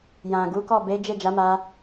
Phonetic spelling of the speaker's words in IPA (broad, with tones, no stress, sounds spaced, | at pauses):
j ã˨ ɡ u˨˦ k ɔ˦˨ b e˨˦ d͡ʒ e˦˨ d͡ʒ a˨˦ m a˧